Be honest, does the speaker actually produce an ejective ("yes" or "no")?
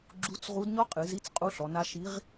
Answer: yes